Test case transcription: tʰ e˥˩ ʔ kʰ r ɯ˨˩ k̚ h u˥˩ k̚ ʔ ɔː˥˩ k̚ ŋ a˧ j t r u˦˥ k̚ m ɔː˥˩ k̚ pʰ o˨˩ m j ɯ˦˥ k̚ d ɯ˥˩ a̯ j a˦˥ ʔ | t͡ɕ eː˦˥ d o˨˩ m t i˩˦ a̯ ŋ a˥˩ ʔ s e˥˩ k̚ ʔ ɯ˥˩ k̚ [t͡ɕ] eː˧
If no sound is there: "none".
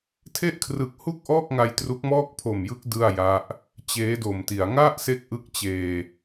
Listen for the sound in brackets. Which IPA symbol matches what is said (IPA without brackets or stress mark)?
t͡ɕ